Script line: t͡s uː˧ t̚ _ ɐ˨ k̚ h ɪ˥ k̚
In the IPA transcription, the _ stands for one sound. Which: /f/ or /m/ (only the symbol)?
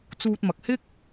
m